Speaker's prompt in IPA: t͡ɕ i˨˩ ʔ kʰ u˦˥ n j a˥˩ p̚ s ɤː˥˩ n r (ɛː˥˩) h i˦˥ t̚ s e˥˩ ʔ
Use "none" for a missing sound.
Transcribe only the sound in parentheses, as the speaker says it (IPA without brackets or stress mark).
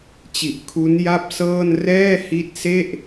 ɛː˥˩